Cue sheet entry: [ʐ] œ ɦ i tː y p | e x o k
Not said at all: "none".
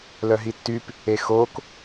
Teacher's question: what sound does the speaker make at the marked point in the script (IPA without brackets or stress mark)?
l